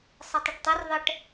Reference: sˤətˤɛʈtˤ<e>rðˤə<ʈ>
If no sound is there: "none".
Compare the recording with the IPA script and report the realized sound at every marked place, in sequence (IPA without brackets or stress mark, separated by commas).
ɛ, ʈ